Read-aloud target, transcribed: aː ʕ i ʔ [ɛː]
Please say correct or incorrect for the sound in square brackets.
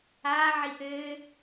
incorrect: ɘː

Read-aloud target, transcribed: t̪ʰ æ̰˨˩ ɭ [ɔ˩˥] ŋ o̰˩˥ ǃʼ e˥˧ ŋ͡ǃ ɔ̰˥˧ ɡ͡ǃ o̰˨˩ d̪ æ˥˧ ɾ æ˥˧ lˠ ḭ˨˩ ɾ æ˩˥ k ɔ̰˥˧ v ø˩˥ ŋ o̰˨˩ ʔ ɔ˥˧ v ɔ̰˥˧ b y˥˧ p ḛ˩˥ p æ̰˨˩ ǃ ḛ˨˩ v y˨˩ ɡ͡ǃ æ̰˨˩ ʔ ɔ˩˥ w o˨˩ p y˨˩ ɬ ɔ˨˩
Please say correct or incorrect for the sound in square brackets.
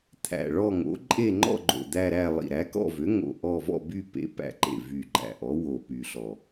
incorrect: ɔ˥˧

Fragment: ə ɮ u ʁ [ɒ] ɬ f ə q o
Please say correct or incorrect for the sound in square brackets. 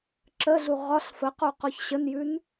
correct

